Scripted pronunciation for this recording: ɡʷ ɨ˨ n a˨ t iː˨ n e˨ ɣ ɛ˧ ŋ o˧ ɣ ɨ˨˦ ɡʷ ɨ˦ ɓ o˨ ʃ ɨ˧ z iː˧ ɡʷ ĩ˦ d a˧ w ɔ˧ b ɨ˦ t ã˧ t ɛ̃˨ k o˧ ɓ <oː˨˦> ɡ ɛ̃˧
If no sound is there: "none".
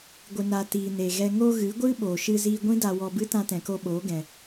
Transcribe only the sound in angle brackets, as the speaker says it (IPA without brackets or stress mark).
oː˨˦